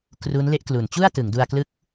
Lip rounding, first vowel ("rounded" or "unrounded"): rounded